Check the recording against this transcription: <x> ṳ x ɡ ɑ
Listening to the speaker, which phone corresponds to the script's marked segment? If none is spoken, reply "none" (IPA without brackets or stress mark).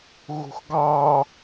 ɣ